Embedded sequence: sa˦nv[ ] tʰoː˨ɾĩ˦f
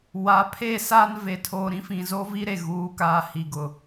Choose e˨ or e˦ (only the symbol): e˨